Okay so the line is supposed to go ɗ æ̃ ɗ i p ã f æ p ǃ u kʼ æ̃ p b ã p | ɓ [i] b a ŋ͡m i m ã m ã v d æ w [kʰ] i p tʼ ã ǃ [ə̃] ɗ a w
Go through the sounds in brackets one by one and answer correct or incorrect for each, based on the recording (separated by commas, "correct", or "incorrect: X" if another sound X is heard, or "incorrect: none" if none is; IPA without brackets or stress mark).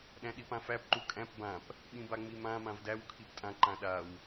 incorrect: ĩ, correct, incorrect: ã